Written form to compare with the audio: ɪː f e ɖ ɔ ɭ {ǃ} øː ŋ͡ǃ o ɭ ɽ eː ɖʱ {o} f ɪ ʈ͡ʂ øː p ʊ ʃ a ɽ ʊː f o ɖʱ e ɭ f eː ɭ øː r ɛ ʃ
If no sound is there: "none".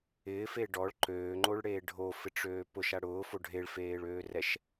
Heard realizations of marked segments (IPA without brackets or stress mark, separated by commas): ǃ, o